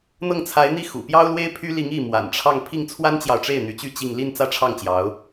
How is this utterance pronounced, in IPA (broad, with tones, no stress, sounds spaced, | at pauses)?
n̪ ɤ˥˩ ŋ t͡sʰ a˧˥ ɪ̯ n̪ i˥˩ x ṵ˨˩ p j ɑ˥ ʊ̯ l w e˥ ɪ̯ pʰ y˥ l i˧˥ ŋ i˥˩ m w a̰˨˩ n ʈ͡ʂʰ ɑ˥˧ ŋ pʰ i˥˩ ŋ t͡sʰ w a˥ n t͡ɕ j ɑ˨ ʊ̯ ʈ͡ʂ e˥˩ ɪ̯ n̪ y˧˥ t͡ɕ y˥˧ t͡ɕ i˥˧ ŋ l i˥˧ n t͡s ä˥˧ ʈ͡ʂʰ ɑ˥˩ ŋ t͡ɕ j ɑ˧˥ ʊ̯